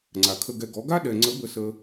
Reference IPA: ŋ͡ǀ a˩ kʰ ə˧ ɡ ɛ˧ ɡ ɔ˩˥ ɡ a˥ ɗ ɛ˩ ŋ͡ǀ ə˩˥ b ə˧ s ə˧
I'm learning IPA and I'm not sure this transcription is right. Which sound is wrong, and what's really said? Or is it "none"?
none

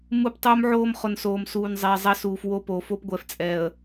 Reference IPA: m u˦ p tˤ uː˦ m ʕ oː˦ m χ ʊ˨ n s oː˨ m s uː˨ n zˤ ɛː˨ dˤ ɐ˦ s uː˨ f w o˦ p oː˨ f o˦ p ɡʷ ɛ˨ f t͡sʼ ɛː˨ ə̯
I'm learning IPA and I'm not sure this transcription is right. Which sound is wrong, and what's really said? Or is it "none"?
dˤ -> zˤ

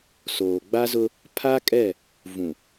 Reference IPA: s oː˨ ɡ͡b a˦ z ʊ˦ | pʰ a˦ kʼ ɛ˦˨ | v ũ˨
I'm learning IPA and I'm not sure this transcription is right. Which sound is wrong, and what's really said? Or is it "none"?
none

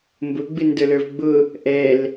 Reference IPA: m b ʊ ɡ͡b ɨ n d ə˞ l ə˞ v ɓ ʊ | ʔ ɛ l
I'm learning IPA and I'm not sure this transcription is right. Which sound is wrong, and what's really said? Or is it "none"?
ɓ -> ɡ͡b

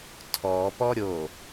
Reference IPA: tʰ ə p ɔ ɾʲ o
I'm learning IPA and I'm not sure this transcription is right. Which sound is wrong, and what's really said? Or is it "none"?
ə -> ɔ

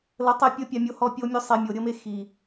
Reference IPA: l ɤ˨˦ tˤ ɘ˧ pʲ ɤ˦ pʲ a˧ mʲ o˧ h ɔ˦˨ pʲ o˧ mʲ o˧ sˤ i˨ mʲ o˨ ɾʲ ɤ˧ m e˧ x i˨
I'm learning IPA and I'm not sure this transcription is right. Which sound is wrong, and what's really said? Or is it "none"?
ɘ˧ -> e˧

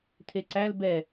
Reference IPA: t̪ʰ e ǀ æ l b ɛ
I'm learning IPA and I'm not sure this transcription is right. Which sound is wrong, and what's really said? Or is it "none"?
none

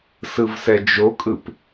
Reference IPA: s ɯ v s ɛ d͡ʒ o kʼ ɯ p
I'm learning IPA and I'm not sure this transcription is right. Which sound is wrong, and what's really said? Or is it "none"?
none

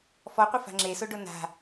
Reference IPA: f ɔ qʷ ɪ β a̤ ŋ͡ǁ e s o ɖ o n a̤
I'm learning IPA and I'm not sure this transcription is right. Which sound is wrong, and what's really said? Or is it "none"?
β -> f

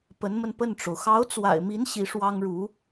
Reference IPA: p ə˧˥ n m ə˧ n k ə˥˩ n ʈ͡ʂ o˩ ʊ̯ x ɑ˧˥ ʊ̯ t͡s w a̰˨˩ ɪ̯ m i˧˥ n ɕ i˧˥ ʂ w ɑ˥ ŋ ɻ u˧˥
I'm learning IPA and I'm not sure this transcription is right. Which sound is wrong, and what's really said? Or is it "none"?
k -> p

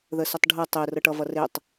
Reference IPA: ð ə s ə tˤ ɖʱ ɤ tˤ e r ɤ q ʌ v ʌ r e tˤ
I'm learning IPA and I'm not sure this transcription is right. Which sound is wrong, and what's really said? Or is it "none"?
q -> ʈ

